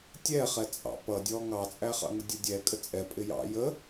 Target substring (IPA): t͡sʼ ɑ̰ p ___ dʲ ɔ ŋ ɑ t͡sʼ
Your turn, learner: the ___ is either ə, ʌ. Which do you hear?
ʌ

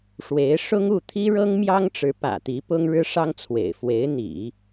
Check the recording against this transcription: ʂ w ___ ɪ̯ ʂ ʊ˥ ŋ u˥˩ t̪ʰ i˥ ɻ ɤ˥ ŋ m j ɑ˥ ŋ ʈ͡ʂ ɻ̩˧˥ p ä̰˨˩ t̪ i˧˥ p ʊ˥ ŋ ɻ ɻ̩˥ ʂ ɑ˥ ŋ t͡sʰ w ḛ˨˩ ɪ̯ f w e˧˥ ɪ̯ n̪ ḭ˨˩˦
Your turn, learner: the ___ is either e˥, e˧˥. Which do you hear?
e˧˥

